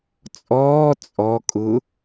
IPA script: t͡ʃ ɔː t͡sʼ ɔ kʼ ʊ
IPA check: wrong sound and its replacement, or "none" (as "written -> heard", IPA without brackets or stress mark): t͡ʃ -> t͡sʼ